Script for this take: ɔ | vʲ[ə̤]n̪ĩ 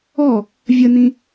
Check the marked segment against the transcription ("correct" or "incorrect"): incorrect